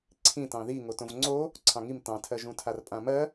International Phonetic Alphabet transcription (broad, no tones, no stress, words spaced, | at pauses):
ǀʰĩtɑ̃ ði ŋotõvŋ͡ǀo | ǀʰɑ̃ŋim tɑ̃tʰɜʒũtʰar pʼãmɜ